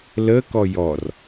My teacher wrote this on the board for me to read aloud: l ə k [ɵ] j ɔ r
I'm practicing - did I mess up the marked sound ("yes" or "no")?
yes